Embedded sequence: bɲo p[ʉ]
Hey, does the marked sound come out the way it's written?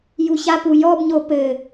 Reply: no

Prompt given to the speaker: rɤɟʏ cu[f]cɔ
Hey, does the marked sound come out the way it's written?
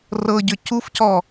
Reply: yes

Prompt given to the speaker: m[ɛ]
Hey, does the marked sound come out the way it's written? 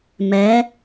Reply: yes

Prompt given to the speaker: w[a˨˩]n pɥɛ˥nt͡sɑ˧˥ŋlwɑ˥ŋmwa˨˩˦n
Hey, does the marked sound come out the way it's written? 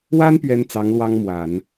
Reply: no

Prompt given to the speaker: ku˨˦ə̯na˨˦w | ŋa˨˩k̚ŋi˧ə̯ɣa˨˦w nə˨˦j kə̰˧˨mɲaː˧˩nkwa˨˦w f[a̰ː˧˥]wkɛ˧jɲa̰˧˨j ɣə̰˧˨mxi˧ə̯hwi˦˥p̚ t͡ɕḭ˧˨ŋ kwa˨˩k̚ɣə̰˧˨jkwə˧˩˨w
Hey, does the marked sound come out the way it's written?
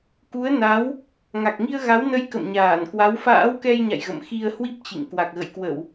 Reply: yes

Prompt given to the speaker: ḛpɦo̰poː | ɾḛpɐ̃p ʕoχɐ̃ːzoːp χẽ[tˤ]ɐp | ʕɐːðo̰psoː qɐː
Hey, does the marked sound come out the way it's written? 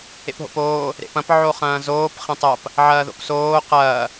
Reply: yes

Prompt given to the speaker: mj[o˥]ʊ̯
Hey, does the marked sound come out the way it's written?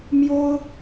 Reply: yes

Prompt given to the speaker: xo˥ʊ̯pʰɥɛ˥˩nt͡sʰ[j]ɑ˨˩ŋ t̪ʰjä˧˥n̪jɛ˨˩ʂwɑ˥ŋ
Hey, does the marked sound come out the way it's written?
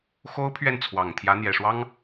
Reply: no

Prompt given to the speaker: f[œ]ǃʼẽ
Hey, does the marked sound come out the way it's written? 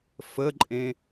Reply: no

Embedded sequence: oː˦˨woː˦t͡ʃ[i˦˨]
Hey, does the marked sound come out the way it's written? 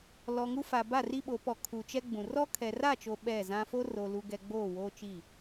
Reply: yes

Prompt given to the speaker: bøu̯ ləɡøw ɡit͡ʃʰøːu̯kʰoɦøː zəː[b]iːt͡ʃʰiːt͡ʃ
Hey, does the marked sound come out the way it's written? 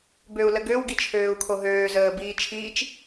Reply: yes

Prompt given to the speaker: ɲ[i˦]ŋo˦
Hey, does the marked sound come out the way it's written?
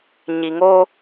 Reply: no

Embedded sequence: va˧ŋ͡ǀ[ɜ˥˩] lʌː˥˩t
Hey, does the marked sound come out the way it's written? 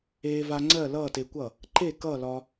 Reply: yes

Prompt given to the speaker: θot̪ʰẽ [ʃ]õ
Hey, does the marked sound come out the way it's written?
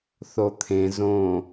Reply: no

